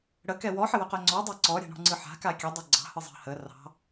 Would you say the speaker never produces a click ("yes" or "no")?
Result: no